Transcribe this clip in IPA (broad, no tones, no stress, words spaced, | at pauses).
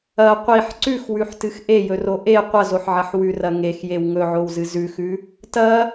ɐ qʷiħ ǀʉxwʉħtɨx ʔejɵro ʔe qʷɐzoħʕɐħ wʉrɐ ŋexjew ŋɵʕowzɨ zʉxʉ | tɐ